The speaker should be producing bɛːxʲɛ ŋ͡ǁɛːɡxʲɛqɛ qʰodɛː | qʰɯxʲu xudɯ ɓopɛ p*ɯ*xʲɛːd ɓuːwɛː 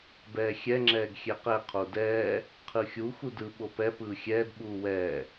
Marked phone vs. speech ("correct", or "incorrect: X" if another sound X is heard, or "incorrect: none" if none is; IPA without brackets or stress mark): incorrect: ɯː